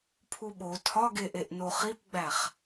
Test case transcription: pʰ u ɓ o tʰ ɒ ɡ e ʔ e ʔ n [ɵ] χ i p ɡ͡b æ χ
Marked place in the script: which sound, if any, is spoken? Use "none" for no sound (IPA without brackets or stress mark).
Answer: o